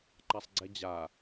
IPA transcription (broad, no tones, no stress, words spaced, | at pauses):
ǃasˤɡ͡ǀɛd͡ʑa